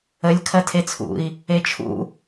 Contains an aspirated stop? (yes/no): yes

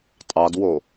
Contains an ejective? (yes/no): yes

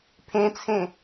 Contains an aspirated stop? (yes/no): yes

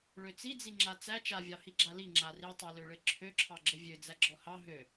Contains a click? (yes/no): yes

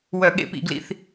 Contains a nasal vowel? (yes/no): no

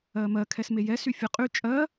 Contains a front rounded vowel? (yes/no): yes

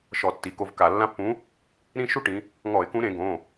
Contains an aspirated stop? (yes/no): no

